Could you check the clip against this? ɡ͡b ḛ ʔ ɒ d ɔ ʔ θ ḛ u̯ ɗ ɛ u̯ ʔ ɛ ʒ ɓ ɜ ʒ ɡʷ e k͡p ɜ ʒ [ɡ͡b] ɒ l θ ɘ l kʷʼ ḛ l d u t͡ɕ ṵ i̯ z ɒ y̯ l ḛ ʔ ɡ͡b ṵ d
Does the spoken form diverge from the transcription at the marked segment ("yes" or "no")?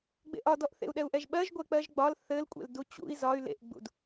no